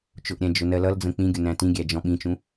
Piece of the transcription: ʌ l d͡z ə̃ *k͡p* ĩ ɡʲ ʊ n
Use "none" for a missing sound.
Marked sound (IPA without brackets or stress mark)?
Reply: k͡p